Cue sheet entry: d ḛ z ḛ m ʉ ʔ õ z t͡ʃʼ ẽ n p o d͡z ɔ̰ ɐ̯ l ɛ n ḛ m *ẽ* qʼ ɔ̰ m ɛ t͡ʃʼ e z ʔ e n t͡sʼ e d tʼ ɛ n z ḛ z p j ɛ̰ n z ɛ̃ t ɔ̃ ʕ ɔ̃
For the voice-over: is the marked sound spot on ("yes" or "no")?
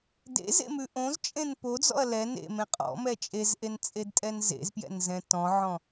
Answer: yes